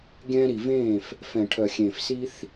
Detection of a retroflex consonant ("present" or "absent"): present